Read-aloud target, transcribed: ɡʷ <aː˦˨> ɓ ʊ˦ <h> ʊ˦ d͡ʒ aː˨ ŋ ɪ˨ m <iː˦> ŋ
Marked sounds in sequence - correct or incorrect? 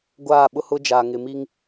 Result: correct, correct, incorrect

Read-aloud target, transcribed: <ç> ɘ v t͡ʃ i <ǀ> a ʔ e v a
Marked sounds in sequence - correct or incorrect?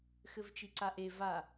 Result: incorrect, correct

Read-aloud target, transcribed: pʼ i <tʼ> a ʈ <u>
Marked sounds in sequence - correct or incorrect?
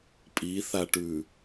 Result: incorrect, incorrect

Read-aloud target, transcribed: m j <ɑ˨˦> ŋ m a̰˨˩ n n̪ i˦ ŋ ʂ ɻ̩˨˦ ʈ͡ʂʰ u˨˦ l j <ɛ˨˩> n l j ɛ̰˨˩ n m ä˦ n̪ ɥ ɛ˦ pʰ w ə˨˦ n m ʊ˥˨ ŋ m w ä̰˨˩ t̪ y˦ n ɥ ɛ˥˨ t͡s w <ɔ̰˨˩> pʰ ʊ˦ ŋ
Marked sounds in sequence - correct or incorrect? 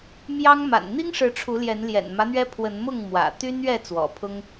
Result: incorrect, incorrect, correct

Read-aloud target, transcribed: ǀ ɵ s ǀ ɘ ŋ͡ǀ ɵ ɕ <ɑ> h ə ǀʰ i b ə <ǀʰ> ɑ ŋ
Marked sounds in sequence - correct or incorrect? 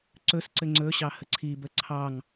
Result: correct, correct

